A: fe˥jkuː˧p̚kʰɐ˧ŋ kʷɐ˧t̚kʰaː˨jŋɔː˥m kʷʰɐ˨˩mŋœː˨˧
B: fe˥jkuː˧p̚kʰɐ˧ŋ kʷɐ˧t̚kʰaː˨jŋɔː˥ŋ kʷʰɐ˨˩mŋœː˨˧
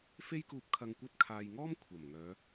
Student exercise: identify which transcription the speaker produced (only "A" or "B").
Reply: A